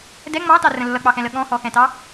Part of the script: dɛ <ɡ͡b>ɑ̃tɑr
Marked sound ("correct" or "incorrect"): incorrect